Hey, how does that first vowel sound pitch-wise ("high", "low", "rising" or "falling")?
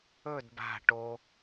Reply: falling